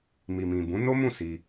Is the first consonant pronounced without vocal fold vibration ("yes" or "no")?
no